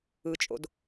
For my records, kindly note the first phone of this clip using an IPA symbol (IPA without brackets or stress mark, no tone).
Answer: ɯ